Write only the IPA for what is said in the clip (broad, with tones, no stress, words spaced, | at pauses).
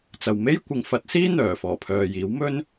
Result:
t͡sɐ˨wme˥jkʷɪ˨˧ŋ fɐ˨˥t̚siː˥ n̪œː˨˩fɔː˨˩pʰœː˨jiː˨˥w mɵ˥n